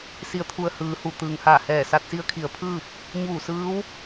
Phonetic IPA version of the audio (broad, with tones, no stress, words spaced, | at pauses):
si˩˧ə̯t̪ʰu˩ə̯ hɯː˩˧hu˩ t̪ɯː˩ŋhaː˧˩ hɛː˧˩sa˧t̚si˧˥ə̯ kʰi˩˧ə̯pʰɯː˥˨p̚ | ɲuː˧˩sɯː˧˥w